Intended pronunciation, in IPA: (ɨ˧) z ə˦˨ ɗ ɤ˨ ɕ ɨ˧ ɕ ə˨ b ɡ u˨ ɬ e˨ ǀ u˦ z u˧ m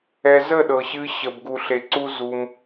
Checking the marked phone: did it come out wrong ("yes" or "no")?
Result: yes